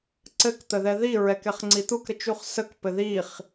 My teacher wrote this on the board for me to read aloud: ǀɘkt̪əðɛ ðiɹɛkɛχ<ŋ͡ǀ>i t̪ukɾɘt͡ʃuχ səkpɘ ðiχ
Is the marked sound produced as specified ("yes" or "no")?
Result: yes